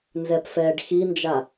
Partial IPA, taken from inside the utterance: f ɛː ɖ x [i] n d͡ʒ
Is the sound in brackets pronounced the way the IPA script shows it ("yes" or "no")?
yes